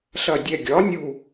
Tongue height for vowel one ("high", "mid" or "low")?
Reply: low